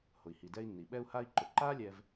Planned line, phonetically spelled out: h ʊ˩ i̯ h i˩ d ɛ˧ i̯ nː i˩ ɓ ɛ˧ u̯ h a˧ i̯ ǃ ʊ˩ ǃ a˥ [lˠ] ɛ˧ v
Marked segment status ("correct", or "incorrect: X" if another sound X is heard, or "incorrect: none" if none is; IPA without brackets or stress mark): incorrect: lʲ